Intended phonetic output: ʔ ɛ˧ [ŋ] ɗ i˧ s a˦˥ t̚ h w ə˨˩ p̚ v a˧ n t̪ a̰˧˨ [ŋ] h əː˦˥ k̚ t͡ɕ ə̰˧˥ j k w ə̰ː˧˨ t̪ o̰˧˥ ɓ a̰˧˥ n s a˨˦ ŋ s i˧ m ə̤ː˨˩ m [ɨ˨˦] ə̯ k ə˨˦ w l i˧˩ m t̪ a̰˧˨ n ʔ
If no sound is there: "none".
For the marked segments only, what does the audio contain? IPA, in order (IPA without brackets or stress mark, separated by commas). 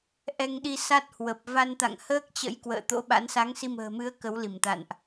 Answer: ŋ, ŋ, ɨ˨˦